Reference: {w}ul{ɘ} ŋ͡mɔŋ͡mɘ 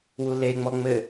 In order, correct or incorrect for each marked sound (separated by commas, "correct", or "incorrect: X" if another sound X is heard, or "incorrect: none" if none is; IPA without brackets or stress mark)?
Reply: correct, incorrect: e